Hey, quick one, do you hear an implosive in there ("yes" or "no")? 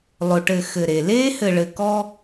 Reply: no